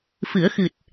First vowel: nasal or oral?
oral